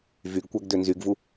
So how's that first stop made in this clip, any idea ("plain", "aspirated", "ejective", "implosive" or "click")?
plain